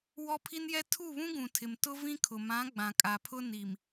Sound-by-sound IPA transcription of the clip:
w ɔ˦ pʰ i˦ n j ɛ˦ tʰ u˦˨ β ũ˦ ɡ ũ˨ tʰ ɪ˨ m t ʊ˦ v ĩ˦ kʰ ʊ˨ m ã˨˦ ɡ͡b ã˨ kʼ a˨ pʰ ʊ˦ n i˨ m

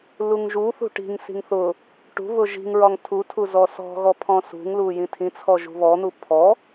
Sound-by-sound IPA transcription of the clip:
l u ŋ ʒ u θ ṳ ʈ i̤ ŋ s i̤ ŋ θ ʊ | ʈ ṳ β ʊ ʒ i̤ ŋ ɹ ɒ ŋ tʰ u tʰ u z ɔ s ɔ̤ ɣ ɔ pʰ ɔ̃ s ṳ ŋ l u j ĩ tʰ ĩ t͡sʰ ɔ ʒ ṳ β ɔ n̪ u pʰ ɔ

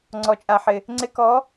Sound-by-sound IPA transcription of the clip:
ŋ͡ǀ ɔ˨ t͡ʃʼ a˨ ħ ɪ˨ | ŋ͡ǀ ɪ˧ k ɔ˨˦

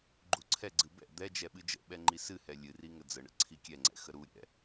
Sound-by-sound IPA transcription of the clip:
ɡ͡ǃ u ǀʰ ɛ ɡ͡ǀ ɨ b ɛ̰ d̪ ɛ d͡ʒ ɛ ɓ ɨ d͡ʒ ə̰ ɓ ɛ ŋ͡ǃ i s ɨ h ɛ lʲ ɨ r i ŋ ə d͡z ə ɳ ə̰ ǀʰ i kʲ ɛ ŋ͡ǀ ɛ̰ x ə ɾ u ɾʲ ɛ̰

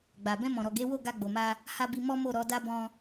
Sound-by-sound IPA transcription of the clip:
ɡ͡b a˨ b ɛ̃˧ m ɔ̃˨ ɾ ɔ˨ ɡ e˨˦ w o˦˨ ɡ a˧ ɡ͡b o˨ m a˧ | h a˧ b i˧ m ɔ˦ m o˦˨ ɾ ɔ˧ d a˦ b ɔ̃˧

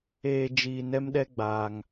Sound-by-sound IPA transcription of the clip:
eː˧ d͡ʒ iː˧ n ɛ˦ m ɗ ɛ˦ ɡ͡b aː˧ ŋ

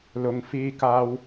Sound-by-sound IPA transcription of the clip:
l ʊ˨ ŋ f iː˧ k aː˧ w

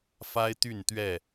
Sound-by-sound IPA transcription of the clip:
f a˦ ɪ̯ t̪ y˥˨ n t̪ ɥ ɛ˥˨

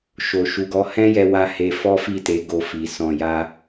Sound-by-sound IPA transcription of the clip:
ʃ o˧ ʃ u˧ ɡ ɔ˦ h ɛ̃˦ j ɛ˧ w a˧ h e˧ f ɔ˦ f i˦˨ t e˨˦ ɡ o˧ f i˨ s ɔ̃˧ j a˦

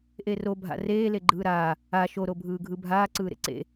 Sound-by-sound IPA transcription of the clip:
ʔ e r o bʱ a̰ r eː l e ɡ͡ǃ ɯː ɾ aː | a ʃ o ɾ o bʱ ɯː ɡʱ ɯ bʱ aː ǀ ɯː ɾ ḛ ǀ ḛ

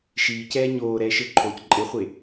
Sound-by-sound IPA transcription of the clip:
ʃ iː c ɛː ɲ oː ɾ ɛː ʃ ɘ ǃʰ oː c ǃʼ e χʷ e

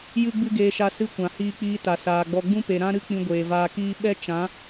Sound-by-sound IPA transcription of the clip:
j ɨ˦ ɡ͡b ɨ˦ ɡ eː˧ ʃ a˧ s ɨ˧ kʷ ã˨ h iː˧ k͡p iː˧ t a˨ s aː˨ ɡ͡b ɔ˧ ɡ͡b ũ˦ p e˨ ɾ ã˦ ɾ ɨ˦ k͡p ĩ˧ ɡʷ eː˨ v aː˧ k iː˦ ɓ ɛ˦ t͡ʃ ã˨˦

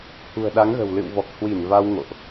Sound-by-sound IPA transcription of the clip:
h ṳ˨˩ ə̯ ɗ a˨˦ ŋ ɣ ə̤˨˩ w l ɨ̰˧˨ w v ɔ˨˩ k̚ h w i˧˩ n v a˧ w ŋ o̰˧˨ ʔ

